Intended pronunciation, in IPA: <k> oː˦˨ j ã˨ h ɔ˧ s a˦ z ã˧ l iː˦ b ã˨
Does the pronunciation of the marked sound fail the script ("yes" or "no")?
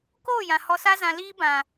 no